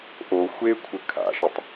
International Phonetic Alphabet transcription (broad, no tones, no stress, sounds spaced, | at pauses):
ʔ o xʷ e kʷʰ ɘ kʰ a̰ ʃ ɘ tˤ